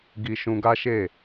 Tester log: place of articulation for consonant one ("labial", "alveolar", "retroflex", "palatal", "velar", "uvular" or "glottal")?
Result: velar